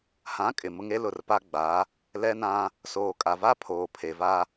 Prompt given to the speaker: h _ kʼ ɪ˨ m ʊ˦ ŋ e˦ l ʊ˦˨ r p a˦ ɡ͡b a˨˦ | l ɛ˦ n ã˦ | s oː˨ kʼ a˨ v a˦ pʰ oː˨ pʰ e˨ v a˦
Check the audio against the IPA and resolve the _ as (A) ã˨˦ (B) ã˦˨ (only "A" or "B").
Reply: A